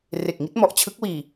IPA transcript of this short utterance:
r e˨˩ k̚ ŋ i˦˥ t̚ m ɔ˨˩ ʔ t͡ɕʰ ɯ˦˥ k̚ w iː˨˩

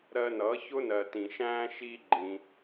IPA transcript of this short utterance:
ɾ ɜ˧ n ʌ˨˦ ç ʊ˦ n ɜ˨ t ĩ˨ ʃ æ̃ː˦ ʃ i˦ ɡ͡ǃ ĩ˧

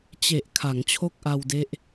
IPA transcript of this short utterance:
t͡ɕ e˨˩ ʔ kʰ a˩˦ ŋ t͡ɕʰ o˥˩ k̚ ʔ a˧ w d e˦˥ ʔ

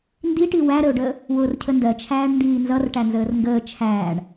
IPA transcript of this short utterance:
n d i ʈ i w æ ɾ ə ʊ̯ ɖ əː | w ʊː r cʰ ə n d ɜ t͡ʃʰ æː ɳ n d iː n z ʌ r ʈ æ n z əː r ŋ ɡ əː t͡ʃʰ æː ɳ

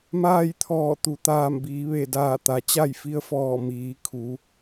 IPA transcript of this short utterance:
m aː˥˨ j t̪ʰ ɔː˧˩ t̪ u˩˧ t̪ aː˧˩ m b iː˩˧ ʋ e˧˩ d aː˧˩ t̪ a˩ t͡ɕ a˥˨ j f i˧˥ ə̯ f ɔː˧˩ m iː˩˧ kʰ u˩˧

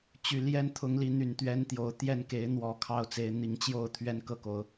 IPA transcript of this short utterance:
t͡ɕ y˨˩ l j ɛ˦ n t̪ʰ ʊ˨˦ ŋ l i˨˦ n̪ y˨˩ n t̪ ɥ ɛ˦ n t̪ j o˨˦ ʊ̯ t̪ j ɛ˥˨ n k e˨˦ ɪ̯ n̪ w ɔ˨˦ kʰ ɑ˥˨ ʊ̯ t͡s e˨˦ ɪ̯ n̪ i˨˦ ŋ t͡ɕ j o˥˨ ʊ̯ t̪ʰ ɥ ɛ˦ n k ɤ˥˨ k o˨˦ ʊ̯

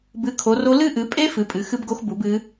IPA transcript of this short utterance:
b ɨ˨˦ kʰ o˨˦ r o˦˥ l ɨ˦˥ ʔ ɨ˨˦ pʼ e˦˥ f ɨ˨˦ pʼ ɨ˨˦ x ɨ˦˥ b ɡ o˦˥ x b u˨˦ b ɨ˦˥

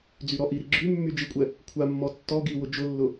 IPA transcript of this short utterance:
d͡z y ɾ ɔ ʔ i ɾ i ɡ͡ǁ y mː y d͡ʒ i kʷʼ ɛ | kʷʰ a mː ɔ tː ɔ ɡ i w ʊ d͡ʒ ʊ lː ʊ

